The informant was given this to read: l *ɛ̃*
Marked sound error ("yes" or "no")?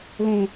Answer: yes